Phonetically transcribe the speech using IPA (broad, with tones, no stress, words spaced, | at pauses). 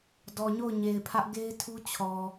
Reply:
dɔ˨ɲo˦˨ʊ̯ɲe˨ɪ̯pʰä˦ʔ ɡe˦ɪ̯tʰu˦ t͡ɕʰɔ˨